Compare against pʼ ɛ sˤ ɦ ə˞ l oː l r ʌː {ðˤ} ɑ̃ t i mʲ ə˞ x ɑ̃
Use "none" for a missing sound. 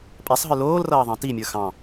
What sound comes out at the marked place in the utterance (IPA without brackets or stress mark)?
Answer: ðˤ